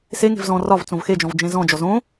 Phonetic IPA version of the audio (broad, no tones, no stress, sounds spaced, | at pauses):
s e ŋ e̤ v z ɔ̃ r ɒ v t͡s õ v x e d͡ʒ ɔ̃ v d͡ʒ ẽ z ɔ̃ d͡ʒ ɔ z õ